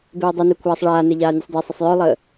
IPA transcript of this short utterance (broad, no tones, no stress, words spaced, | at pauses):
beːdˤune kʷʰaːsˤɭaːne ʎaːnʲusˤdesˤəsˤ jœlˠəː